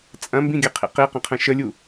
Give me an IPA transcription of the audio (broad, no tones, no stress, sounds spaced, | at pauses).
t͡sʼ ɐ̃ m b ĩ ɡʲ ɐ qʰ ḭ q i q ə̃ qʰ ə̃ ʃ ə lʲ u